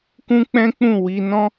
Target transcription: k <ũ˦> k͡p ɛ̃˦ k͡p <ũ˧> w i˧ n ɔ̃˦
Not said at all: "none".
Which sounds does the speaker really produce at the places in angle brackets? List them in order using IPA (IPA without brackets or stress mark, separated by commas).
ũ˦, ũ˦˨